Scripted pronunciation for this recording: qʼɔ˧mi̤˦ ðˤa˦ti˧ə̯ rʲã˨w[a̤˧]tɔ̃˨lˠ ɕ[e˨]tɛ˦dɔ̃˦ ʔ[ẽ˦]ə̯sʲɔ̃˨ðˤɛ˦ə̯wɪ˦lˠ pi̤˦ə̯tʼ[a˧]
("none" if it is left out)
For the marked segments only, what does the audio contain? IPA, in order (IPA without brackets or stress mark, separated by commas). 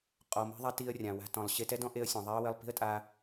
a̤˧, e˧, e˦, a˧